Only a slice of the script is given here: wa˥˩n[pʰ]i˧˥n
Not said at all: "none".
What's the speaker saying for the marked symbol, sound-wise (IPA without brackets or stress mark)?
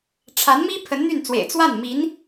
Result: m